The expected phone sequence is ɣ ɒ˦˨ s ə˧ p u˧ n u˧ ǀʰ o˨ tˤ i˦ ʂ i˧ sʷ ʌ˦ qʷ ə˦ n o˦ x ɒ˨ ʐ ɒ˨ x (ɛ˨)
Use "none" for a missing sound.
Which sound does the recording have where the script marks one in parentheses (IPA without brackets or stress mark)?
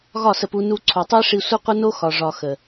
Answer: ə˨